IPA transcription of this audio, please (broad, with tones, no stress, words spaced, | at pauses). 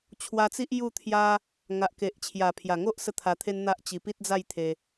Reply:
t͡ɕʰwa˧t͡si˦ʔ ju˥˧t̪ʰja˦ | ŋa˨ʔke˨ʔ t͡ɕʰja˨˩pʰja˨˩ŋo˦ʔ sə˦t̪ʰa˧t̪ʰe˦nn̪a˦ʔ t͡ɕi˧pi˦t̚d͡za˥˧jt̪ʰe˧